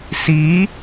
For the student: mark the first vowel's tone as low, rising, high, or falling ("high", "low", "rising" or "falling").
rising